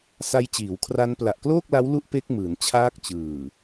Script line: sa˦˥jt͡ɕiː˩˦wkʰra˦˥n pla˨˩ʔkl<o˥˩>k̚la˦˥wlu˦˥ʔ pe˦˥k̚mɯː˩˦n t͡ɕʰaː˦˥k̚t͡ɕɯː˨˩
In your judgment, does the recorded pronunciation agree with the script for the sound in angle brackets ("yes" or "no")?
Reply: no